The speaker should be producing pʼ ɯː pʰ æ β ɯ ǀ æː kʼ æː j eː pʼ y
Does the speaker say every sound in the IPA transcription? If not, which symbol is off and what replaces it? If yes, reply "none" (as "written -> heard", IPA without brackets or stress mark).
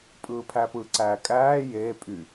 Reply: β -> p